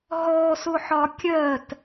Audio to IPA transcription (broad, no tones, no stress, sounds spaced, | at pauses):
ɦ ɔ s ʊ ħ ɒ kʲ ɜ t